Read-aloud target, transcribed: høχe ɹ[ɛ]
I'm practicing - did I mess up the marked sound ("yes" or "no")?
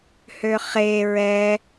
no